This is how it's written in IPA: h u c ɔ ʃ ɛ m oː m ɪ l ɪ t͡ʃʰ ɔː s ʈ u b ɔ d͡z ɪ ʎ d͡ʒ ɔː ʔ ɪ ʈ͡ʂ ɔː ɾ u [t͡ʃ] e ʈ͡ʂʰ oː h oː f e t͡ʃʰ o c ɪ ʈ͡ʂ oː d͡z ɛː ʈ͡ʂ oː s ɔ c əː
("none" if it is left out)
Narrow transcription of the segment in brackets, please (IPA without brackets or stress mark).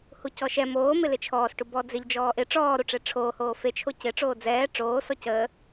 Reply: ʈ͡ʂ